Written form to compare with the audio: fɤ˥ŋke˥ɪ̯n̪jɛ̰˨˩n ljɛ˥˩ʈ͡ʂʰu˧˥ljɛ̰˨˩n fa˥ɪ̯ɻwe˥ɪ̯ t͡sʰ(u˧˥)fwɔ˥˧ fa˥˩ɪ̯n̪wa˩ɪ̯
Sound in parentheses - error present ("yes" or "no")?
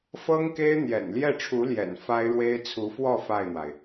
no